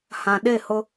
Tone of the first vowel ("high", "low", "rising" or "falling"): low